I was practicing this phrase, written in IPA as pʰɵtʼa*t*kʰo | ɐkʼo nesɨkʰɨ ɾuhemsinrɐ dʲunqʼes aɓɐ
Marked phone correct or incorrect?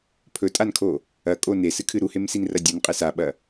incorrect